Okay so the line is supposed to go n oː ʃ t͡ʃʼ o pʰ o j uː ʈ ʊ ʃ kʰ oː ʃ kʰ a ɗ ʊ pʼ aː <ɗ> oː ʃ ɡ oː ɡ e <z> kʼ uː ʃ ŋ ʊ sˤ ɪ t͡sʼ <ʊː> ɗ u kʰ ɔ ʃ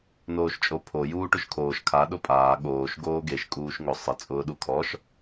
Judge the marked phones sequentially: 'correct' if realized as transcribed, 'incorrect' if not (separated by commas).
incorrect, incorrect, correct